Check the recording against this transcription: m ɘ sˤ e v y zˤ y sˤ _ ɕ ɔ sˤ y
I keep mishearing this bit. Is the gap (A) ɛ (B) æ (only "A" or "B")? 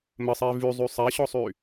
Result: A